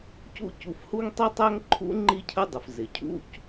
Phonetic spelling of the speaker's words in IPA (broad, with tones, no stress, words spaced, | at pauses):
cṵ˥cu˧fhu˥ŋ tˤi˥tˤæ˥ŋǃʰṵ˥ ŋ͡ǃi˥cʰə˥dˤə˩f zɪ˩cʰṵ˥c